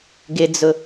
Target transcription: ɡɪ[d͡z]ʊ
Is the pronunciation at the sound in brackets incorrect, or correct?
correct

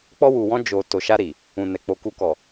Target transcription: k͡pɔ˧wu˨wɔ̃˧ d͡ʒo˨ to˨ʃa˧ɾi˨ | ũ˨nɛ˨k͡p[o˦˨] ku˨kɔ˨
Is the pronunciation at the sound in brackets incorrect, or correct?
incorrect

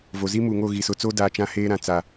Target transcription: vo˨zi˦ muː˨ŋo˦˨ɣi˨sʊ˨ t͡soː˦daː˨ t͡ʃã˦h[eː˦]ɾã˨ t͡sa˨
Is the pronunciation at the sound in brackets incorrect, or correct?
correct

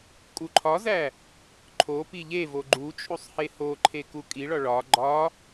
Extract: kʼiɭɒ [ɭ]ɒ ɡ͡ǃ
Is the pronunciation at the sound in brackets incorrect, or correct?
correct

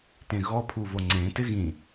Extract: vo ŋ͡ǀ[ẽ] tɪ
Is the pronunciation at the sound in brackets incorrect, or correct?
correct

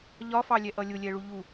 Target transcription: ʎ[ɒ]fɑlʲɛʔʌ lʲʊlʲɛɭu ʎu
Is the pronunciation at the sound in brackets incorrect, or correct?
correct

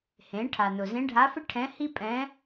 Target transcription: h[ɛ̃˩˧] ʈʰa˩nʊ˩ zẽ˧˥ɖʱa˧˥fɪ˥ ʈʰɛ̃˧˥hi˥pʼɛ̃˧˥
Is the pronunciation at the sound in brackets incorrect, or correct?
incorrect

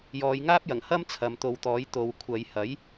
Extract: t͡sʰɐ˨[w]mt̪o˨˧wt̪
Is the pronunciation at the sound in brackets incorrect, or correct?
incorrect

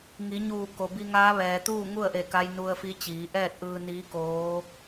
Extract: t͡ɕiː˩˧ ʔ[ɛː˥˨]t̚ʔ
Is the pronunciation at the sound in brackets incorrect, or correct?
correct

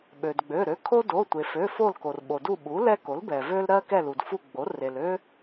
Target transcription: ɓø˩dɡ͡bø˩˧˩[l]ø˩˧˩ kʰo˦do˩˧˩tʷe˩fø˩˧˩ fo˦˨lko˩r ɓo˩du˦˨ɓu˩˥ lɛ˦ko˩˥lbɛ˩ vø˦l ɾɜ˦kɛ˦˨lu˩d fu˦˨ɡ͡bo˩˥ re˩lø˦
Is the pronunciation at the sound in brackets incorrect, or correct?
incorrect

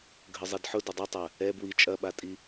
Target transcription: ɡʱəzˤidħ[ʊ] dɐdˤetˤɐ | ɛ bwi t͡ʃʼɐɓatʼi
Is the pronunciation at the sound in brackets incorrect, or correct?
correct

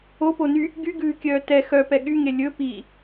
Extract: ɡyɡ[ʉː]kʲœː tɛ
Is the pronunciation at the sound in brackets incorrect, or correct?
correct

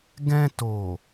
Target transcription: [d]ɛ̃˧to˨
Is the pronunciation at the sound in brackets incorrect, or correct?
incorrect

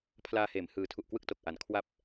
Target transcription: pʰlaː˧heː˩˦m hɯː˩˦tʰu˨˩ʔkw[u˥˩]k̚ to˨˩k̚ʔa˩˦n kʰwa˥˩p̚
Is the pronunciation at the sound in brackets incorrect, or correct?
incorrect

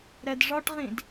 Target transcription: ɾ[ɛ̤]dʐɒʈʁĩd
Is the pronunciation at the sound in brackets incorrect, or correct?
incorrect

